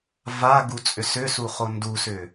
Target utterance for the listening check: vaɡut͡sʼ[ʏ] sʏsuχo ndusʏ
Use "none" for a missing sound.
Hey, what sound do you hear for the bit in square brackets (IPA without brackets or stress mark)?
ʏ